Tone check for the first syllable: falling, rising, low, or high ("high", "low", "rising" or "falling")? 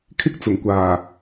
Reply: high